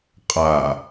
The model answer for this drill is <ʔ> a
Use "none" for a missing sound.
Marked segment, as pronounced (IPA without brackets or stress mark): qʼ